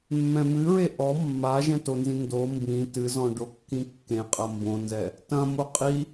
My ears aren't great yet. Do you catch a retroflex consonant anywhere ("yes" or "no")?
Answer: yes